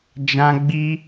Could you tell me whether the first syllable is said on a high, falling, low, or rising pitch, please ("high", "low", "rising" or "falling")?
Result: high